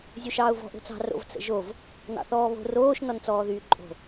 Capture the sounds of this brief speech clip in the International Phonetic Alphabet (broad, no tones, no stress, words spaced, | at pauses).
zʲoʃɑːʊ̯vɔ̤ ʔo̤t͡sɑ̤ ro̰vt͡sə̰ʒov | nɑ̰θɔːβo̤ roːʃ nɔnt͡sɔːðyːǃʼo̤